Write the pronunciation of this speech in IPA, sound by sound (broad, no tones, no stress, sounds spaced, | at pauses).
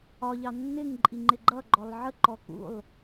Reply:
ɒ ʎ ɑ nː ɪ ŋ ǃʼ i ŋ͡ǃ ɪ ɡ͡ǃ ʌ ɡ͡ǃ ɔ lˠ ʕ ə ǃ ɔ k ṵ lˠ